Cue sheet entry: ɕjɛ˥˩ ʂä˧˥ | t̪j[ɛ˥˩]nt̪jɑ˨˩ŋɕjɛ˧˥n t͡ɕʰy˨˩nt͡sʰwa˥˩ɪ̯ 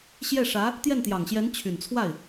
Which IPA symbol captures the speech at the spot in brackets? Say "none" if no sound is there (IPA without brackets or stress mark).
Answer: ɛ˥˩